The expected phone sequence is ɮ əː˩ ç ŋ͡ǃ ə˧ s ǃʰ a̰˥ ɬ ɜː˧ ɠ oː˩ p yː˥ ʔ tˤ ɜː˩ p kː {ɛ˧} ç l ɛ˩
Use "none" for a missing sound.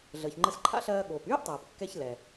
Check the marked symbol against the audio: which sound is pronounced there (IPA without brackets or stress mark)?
ɛ˧